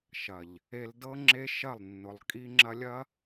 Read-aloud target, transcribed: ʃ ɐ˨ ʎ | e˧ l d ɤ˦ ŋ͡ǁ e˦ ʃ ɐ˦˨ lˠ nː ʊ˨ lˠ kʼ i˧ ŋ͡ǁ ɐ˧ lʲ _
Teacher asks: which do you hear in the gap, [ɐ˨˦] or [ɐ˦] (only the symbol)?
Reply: ɐ˦